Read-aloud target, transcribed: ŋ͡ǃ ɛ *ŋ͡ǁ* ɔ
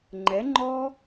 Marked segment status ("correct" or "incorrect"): incorrect